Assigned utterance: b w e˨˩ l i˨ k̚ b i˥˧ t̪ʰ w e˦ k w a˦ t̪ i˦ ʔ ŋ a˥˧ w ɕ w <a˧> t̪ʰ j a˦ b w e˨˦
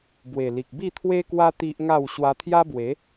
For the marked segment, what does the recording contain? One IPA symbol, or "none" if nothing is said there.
a˧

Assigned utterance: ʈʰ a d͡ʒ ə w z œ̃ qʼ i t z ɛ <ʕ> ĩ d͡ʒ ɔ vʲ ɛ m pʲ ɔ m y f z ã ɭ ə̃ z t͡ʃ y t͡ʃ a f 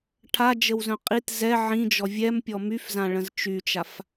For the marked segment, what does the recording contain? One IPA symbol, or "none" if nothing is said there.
ʕ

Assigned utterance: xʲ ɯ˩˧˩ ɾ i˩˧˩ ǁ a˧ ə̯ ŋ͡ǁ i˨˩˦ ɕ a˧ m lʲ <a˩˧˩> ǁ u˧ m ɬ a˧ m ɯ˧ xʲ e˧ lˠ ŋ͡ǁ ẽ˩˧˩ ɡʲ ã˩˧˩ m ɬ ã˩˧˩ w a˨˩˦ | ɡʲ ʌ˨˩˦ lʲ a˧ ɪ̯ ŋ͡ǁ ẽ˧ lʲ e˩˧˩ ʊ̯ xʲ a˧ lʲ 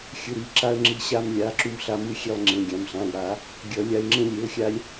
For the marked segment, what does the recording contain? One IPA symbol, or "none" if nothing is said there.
a˩˧˩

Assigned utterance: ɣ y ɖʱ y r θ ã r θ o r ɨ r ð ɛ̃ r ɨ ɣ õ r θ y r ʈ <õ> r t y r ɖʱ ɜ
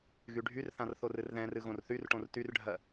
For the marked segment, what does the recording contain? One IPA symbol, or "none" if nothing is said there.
õ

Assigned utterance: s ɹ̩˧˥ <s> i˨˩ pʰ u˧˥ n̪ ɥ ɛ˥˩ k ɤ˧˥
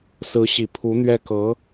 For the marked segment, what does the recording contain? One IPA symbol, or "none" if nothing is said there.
ɕ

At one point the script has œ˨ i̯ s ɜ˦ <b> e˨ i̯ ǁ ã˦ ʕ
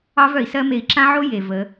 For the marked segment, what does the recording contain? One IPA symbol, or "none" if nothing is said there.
m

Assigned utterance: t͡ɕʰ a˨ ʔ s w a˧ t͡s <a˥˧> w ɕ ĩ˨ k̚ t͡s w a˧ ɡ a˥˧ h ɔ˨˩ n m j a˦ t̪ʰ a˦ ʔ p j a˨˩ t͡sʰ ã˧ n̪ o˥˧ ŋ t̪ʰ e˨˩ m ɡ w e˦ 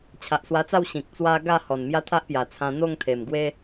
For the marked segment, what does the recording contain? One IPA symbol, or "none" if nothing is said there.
a˥˧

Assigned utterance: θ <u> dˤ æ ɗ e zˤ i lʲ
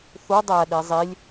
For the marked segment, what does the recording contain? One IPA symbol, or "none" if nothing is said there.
u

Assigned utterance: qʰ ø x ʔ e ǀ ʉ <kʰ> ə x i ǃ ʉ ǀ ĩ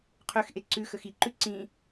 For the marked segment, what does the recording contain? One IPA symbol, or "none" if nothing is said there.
x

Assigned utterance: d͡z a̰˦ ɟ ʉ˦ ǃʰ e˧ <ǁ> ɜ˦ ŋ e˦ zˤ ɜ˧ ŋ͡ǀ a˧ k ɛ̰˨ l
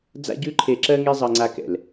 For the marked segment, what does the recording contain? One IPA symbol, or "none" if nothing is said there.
ǁ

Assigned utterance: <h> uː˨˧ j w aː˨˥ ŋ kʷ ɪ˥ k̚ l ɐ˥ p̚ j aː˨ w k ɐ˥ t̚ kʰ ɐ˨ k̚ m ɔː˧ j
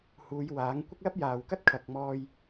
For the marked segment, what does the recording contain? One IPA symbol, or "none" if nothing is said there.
h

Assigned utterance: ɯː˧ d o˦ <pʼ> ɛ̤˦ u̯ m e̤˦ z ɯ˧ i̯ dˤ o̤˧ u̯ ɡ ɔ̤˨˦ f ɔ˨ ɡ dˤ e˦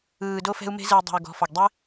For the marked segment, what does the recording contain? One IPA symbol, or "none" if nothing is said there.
f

